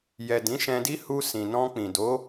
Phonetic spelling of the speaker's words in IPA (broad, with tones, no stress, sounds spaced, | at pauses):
j ɛ˨ d ĩ˨˦ ʃ ɛ̃˧ d i˦ h u˧ s ĩ˨ n ɔ̃˧ k͡p ĩ˨ d o˨˦